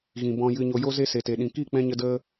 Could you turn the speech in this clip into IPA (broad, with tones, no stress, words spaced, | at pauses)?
ɣĩ˨bɔ̃˧jɨ˧ɲo˧ jo˦ze˦ se˨te˨ɗĩ˨ ki˦˨k͡pɛ̃˧ɲə˧ də˦